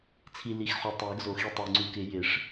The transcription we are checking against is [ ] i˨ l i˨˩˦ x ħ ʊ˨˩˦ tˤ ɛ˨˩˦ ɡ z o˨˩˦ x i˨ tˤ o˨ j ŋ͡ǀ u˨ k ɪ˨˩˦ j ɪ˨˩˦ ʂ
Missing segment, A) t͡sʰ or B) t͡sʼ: A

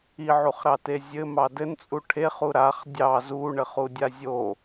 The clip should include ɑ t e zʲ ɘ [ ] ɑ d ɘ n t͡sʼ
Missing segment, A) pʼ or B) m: B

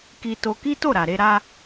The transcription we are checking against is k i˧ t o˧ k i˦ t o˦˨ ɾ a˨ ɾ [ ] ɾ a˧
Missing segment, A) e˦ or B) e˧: B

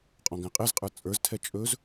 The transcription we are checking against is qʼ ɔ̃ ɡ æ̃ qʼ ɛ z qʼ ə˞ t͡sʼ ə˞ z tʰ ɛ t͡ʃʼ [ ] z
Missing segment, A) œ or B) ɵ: B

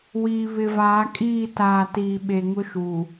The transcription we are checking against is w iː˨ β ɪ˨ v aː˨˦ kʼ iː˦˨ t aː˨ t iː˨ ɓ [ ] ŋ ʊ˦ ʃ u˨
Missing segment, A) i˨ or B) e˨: B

